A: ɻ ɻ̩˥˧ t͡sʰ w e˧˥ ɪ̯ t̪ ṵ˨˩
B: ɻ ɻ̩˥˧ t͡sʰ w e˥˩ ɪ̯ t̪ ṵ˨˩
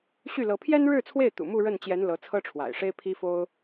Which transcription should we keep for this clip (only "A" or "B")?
B